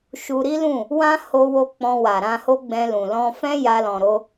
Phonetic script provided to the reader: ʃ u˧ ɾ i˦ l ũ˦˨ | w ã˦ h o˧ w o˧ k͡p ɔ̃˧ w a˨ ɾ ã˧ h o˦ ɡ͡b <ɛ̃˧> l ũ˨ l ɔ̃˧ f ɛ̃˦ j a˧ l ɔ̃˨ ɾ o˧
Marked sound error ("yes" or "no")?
no